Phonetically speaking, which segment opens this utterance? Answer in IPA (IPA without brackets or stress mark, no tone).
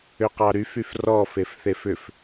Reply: ʏ